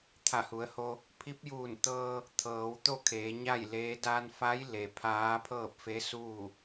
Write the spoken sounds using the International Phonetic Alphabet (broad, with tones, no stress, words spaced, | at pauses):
t̪ʰa˧˩hu˩˧ə̯ho˧ | pʰi˧˥p̚juː˧˩nt̪ɤː˧ | t̪ʰɤː˩˧wt̪o˥˨ kʰeː˩˧ɲa˥˨jleː˧˥ da˧nfa˧˥j le˩pʰaː˧˥ pʰɤː˥˨p̚fe˧˥suː˥˨